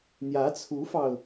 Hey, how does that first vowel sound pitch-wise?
rising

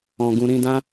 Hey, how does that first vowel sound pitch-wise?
low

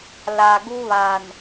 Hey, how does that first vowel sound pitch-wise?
low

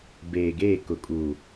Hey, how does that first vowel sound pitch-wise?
low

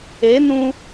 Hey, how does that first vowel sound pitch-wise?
rising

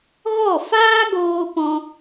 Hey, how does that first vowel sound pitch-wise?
falling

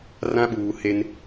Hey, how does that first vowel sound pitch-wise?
high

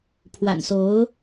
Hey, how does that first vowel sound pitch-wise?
low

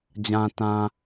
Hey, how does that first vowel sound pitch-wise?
low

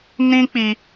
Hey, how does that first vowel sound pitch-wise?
high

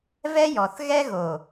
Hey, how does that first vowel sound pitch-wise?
high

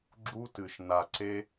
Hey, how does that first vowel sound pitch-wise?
high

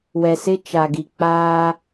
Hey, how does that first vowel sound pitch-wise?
low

